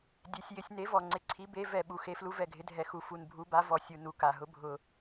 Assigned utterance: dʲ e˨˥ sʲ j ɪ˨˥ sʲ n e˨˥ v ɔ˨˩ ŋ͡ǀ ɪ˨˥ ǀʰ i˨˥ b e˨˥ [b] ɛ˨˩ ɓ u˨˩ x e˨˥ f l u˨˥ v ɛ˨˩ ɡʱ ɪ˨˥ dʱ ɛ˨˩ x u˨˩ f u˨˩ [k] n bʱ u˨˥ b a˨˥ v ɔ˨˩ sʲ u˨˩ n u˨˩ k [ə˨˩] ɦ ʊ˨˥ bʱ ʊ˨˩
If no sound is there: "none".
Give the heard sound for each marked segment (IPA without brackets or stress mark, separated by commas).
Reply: v, none, a˨˩